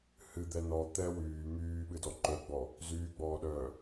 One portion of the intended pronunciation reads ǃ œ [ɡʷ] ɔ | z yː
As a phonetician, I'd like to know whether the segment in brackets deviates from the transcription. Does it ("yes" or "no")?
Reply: yes